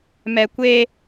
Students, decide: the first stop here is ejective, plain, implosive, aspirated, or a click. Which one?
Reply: plain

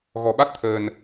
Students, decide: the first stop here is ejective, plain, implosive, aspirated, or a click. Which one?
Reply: implosive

